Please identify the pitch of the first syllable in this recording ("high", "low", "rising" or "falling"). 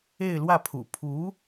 falling